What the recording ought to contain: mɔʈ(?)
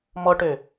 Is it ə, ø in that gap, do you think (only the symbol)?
ø